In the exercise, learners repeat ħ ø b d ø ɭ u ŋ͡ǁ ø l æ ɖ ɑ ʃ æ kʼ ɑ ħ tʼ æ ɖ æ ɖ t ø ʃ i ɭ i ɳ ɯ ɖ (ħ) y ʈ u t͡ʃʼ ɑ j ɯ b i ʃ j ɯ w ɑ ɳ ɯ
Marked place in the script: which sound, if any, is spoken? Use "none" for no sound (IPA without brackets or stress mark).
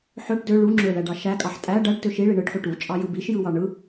ħ